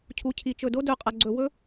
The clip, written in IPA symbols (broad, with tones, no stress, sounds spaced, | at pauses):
cʰ u˩ cʰ i˩ t͡ʃ ɵ˩ d o˥ d ɵ˩ qʼ ɐ˩ ɡ͡ǀ ɵ˩ w ɵ˥